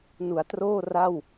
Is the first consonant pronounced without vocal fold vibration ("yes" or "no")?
no